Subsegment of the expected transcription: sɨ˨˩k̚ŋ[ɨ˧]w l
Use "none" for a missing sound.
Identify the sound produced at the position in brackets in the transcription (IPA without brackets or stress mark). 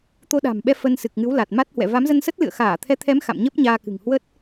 ɨ˨˦